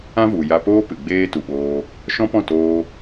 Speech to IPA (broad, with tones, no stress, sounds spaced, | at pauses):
ã˦ v u˨ j a˧ p oː˦ p ɨ˨ ɡ͡b eː˦ t u˨ ɓ oː˧ | ʃ ɔ̃˦ p ɔ̃˦˨ t oː˧